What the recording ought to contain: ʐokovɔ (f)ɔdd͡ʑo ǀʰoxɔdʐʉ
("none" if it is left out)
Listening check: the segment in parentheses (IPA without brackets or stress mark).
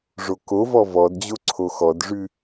v